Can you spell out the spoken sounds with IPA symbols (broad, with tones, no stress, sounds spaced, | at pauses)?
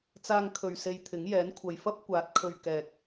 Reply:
t͡s aː˧ ŋ kʰ ɵ˨ ɥ s e˧ j t̪ʰ ɪ˨˥ ŋ j ɛː˨˥ n kʷʰ ɐ˨ j f ɐ˥ p̚ kʷ aː˨˥ t̚ kʰ ɵ˨ ɥ k ɛː˨ k̚